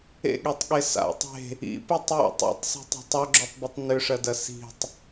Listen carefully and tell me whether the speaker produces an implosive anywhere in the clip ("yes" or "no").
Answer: yes